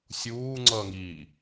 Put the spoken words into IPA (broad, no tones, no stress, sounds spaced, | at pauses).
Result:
sʲ uː ŋ͡ǀ ʌː ŋ i